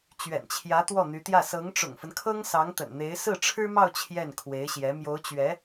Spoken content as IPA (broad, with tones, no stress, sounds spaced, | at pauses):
t͡ɕ ɥ ɛ̰˨˩ n t͡ɕʰ j ä˧˥ t̪ w ɔ˥˩ n̪ y˧˥ t̪ j ä˥˩ s ɤ˧˥ ŋ ʈ͡ʂ ʊ̰˨˩ ŋ f ə˦ n kʰ ɤ˥ ŋ s ɑ˧˥ ŋ t̪ ə̰˨˩ n n̪ e˧˥ ɪ̯ s ɹ̩˥˩ ʈ͡ʂʰ ɻ̩˥ m ɑ˥˧ ʊ̯ t͡ɕʰ j ɛ˥˩ n kʰ w e˧˥ ɪ̯ ɕ j ɛ˧˥ m j o˧˥ ʊ̯ t͡ɕ ɥ ɛ˧˥